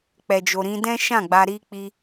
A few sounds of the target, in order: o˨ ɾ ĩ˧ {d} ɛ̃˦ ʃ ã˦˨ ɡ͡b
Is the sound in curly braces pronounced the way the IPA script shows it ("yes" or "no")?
yes